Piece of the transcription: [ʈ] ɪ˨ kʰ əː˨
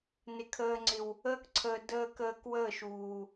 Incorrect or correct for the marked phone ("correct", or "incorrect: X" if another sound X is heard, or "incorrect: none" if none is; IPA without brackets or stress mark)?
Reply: incorrect: n